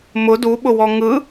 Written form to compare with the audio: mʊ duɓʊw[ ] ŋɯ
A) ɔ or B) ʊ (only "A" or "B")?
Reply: A